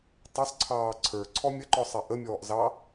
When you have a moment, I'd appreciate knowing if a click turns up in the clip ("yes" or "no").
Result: yes